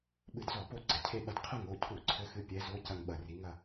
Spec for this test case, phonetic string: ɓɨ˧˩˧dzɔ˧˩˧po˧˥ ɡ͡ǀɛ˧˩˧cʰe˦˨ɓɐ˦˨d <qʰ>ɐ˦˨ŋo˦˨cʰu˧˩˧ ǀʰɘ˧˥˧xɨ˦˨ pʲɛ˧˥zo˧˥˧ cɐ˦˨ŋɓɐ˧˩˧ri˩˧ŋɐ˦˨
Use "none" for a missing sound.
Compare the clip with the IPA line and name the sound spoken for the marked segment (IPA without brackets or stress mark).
qʰ